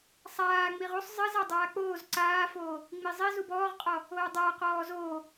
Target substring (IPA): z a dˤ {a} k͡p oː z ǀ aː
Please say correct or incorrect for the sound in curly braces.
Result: incorrect